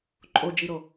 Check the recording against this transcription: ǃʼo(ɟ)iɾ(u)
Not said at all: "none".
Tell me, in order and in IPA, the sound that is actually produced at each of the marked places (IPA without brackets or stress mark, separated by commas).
d͡ʒ, o